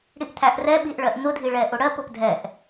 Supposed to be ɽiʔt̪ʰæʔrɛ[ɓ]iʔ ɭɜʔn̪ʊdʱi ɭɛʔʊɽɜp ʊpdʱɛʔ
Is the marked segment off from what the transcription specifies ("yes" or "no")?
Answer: no